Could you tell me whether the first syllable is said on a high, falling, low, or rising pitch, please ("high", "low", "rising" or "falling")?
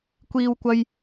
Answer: high